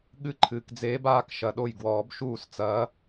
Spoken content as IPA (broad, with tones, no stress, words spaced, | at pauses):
ɠɨ˧˥ ǃʰɨː˨kd͡zeː˧˥b aː˧˥k ʃɐ˨ ɗo˥˩jɡwɔː˨˩˦b ʃuː˥˩st͡sɐː˧˥